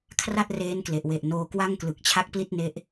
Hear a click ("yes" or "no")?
no